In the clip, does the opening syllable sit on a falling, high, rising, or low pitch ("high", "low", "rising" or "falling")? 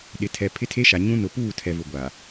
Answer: low